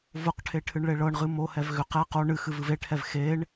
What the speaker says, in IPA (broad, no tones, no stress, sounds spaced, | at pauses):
v ʊ q ʈʰ e ʈʰ ɨ ɳ ɭ e ɭ ɤ ɳ ʁ ɨ m o h ɛ v ɣ ʏ q ɛ q o ɳ ɨ x ɨ v ɨ v e ʈʰ ɛ v x e ɳ